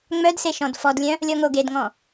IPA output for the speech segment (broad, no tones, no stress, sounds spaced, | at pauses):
ŋ͡m œ d s e ʃ ɔ̃ d f ɔ d lʲ œ̃ | lʲ ɔ ŋ o ɡ e d ŋ ɔ̃